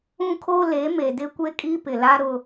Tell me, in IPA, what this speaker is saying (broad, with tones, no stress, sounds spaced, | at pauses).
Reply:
ũ˦ kʰ o˦ l e˨˦ m e˨ d ɪ˦ kʷ e˦ kʼ i˦ p ɪ˨ l a˦ ɾ ʊ˦